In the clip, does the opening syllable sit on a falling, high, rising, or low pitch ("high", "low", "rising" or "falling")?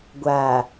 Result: low